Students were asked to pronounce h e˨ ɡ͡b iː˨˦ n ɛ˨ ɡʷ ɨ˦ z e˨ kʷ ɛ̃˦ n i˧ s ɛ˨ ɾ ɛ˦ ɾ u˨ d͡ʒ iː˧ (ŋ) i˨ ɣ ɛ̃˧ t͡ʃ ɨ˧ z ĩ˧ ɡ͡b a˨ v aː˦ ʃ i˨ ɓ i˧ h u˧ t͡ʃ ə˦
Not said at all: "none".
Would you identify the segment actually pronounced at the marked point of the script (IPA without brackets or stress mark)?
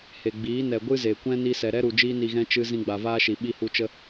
n